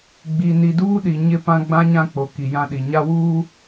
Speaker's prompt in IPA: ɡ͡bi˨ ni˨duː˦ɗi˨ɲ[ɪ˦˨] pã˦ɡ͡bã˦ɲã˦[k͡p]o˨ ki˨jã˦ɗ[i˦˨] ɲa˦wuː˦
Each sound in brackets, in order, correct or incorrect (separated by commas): correct, correct, incorrect